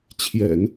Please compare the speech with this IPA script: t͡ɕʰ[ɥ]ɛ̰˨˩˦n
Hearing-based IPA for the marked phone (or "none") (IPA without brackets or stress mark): j